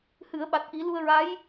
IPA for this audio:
h ɨ˨˩˦ ə̯ ɓ a˨˩ t̚ ʔ i˨˩˦ l u˧ ə̯ ɹ a˧˥ j

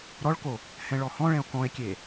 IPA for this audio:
ɾ ɔ ɭ k o | h ɛ̃ ɭ ɔ h ɔ̃ ɭ ɛ̃ o̯ k ɔ̃ e̯ kʲ e

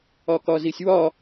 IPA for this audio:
ɒ k ɒ z i sʲ w ɒ

